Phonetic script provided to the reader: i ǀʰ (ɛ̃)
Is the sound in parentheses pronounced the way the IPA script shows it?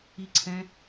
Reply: yes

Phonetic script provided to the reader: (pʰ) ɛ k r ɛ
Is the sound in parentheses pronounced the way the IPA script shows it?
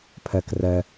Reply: yes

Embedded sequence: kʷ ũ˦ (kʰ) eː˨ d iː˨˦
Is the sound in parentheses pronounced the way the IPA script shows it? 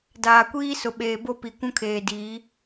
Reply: yes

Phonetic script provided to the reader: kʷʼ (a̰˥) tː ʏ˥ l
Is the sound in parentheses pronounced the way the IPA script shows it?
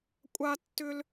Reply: no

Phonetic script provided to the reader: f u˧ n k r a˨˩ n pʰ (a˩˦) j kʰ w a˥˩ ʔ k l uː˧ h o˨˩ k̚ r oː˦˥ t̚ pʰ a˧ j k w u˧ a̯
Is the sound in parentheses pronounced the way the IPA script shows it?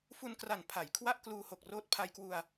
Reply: yes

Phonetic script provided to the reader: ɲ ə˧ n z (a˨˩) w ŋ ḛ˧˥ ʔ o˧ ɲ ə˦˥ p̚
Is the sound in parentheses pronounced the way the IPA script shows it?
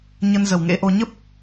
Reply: no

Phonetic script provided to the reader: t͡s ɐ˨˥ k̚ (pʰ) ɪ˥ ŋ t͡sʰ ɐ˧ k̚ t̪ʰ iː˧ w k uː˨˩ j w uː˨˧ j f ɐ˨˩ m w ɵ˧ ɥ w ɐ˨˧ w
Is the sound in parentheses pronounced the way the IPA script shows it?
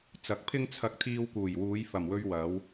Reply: yes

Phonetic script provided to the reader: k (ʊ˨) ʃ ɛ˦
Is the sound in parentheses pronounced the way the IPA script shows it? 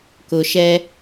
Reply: yes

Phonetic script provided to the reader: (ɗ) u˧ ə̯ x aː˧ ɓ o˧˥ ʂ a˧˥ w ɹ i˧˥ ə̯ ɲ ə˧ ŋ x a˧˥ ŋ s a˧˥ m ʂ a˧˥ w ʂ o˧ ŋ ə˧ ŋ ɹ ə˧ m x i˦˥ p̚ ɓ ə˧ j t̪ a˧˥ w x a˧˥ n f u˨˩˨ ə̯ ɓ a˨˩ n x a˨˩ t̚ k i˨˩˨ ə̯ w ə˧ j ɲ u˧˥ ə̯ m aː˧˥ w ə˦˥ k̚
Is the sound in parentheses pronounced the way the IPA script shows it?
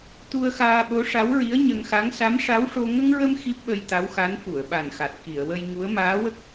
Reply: no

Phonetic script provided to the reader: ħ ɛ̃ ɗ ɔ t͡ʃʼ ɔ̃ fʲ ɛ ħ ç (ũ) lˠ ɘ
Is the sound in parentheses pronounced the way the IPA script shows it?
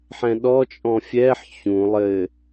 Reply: yes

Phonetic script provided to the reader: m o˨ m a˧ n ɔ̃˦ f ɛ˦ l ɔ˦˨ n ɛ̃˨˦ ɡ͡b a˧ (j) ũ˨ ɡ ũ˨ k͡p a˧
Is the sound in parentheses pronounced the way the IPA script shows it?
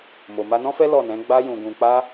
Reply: yes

